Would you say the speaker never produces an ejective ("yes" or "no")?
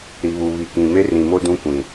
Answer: yes